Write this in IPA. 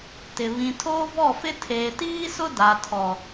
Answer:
t ɪ˨ β ĩ˨ tʰ oː˦ v ɔ˦˨ f ɪ˦ tʰ eː˨ t iː˦ s ʊ˦ d a˨ tʰ ɔ˨

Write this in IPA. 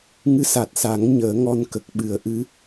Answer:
ŋ ɨ˧˥ s a˨˩ t̚ s a˨˩˦ ŋ ɲ əː˨˩˦ ŋ ɔ˧ n k ə˨˩ k̚ ɓ ɨ˨˩˦ ə̯ ʔ ɨ˧˥

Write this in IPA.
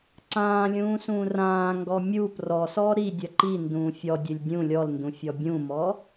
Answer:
ǀ ãː lʲ ũː s ũː r ãː ŋ ɡ ɔ mʲ u p r ɔ s ɔ ɾ i dʲ ɐ ǃ i n d ũː fʲ ɔ dʲ ɘ lʲ dʲ ũ lʲ ɔ l n d ũ fʲ ɔ bʲ ũ m ɔ

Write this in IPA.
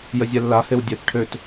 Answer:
j ə zʲ ɛ lː a h e w dʲ e θ ʈʰ ø t

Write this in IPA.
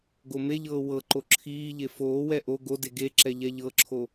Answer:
ɡ o m e ʎ ɤː w ɤ ǃ o ǁʰ iː ʎ e f oː w ɛ ʔ o ɡ o d e ɡ e ǁ ɛ ʎ ɛ ʎ ɤ ǁʰ o

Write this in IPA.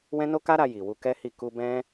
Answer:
w ɛ̃˦ n o˦ k a˦ ɾ a˧ j i˨ w u˧ k ɛ˦ h i˦˨ k u˧ b ɛ̃˦

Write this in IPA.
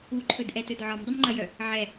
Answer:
u ǃʰ ɵ d ʔ ɛ t ɵ d ʕ ɒ m dˤ ə m ŋ͡ǃ ɐ j œ | ʕ ɛ

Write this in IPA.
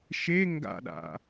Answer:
ʃ e ŋ ɡ a̰ ɗ a̰

